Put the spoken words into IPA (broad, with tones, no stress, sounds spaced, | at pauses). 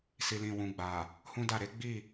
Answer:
s i˨ l ĩ˨ w ũ˨ ɡ͡b a˨ | h ũ˦ d a˦˨ ɾ e˨˦ ɡ͡b i˦˨